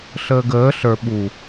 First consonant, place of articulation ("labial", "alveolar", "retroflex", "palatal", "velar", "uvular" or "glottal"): alveolar